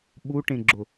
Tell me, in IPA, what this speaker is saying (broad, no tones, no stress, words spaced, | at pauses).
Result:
ɓuʈẽɡ͡ǁʊ